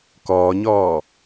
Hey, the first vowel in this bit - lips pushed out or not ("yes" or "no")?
yes